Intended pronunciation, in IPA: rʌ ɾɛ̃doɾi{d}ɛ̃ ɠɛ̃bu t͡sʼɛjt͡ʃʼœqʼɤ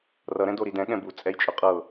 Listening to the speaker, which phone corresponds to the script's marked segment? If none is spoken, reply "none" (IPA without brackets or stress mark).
d